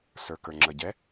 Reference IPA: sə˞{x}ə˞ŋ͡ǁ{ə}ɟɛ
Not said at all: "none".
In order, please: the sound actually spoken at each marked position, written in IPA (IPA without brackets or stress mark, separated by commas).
k, ə